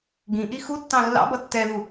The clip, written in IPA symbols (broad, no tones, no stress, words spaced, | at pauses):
ɡĩʔi xutːɑ̃ lːɑ̰bʌ tːɛðu